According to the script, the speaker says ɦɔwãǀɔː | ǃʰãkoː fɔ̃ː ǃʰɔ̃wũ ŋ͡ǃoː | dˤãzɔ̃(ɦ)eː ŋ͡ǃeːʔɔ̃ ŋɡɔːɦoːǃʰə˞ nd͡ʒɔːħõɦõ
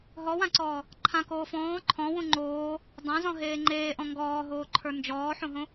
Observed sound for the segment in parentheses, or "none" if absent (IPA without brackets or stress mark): ɦ